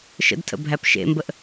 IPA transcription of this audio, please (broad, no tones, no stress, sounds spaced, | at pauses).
ʃ ə̰ d tʰ ə̰ bʱ æ p ʃ ḛ m b ə ʔ